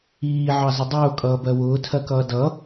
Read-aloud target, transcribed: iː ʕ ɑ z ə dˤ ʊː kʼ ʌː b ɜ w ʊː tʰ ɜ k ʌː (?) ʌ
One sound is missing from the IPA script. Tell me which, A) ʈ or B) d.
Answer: B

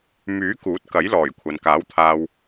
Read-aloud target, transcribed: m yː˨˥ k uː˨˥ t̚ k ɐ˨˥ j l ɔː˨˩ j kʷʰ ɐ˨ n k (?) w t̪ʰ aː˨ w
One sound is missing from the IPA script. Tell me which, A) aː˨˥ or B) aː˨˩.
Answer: A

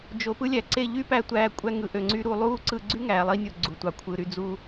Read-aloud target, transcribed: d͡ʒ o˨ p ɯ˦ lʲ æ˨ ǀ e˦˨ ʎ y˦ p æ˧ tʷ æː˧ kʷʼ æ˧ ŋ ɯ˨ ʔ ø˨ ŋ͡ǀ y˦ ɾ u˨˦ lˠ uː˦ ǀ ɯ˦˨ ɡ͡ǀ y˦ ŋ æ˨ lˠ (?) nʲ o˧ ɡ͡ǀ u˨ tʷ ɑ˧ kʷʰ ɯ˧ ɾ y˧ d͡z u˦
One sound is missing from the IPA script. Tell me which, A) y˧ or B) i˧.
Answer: B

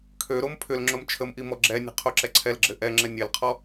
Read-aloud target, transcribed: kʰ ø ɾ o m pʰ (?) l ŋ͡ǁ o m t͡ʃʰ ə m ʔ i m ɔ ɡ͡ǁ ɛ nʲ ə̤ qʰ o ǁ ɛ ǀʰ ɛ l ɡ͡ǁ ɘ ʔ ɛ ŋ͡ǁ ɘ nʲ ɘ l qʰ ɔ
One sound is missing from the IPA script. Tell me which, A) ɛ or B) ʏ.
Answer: B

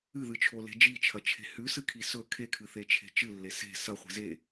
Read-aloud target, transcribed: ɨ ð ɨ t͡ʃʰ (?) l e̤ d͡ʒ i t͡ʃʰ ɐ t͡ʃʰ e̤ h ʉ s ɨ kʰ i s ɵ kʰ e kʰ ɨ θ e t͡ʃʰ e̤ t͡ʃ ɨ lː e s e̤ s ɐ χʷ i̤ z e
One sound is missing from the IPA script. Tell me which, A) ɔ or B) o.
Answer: B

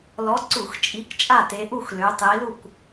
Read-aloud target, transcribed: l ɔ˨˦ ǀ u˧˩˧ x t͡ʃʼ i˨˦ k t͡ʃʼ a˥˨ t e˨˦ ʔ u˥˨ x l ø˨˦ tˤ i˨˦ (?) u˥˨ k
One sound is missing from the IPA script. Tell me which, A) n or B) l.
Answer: B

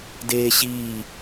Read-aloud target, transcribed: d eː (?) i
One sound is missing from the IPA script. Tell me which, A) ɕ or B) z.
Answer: A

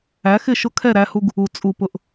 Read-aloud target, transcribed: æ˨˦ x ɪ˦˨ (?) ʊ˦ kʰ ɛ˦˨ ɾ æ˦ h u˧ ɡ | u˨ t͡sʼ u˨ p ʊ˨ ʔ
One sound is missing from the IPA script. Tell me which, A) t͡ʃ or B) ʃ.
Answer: B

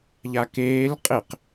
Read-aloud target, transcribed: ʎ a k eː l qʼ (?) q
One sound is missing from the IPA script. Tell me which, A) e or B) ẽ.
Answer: A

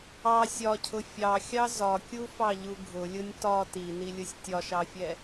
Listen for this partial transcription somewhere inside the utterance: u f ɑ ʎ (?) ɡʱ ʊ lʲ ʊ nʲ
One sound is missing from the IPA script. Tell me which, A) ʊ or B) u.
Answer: B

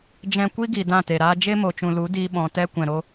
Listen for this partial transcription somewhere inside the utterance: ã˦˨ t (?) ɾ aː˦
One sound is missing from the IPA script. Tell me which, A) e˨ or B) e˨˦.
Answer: A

